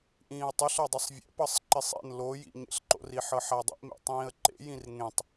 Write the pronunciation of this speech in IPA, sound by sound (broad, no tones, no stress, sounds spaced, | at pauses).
ʔ ĩː ə̯ tˤ ɯ ɬ ɤ dˤ ɯ sˤ vʲ ɛ̰ p ɤ sˤ ǃ e sˤ ḛ n l o j ḭ ɲ ḛ ɬ ǃ o̰ r i ħ ɤ ħ a dˤ ḭ ʔ m ḛ tˤ ĩː ə̯ ǃ ḛ j ĩ r ŋ ẽ tˤ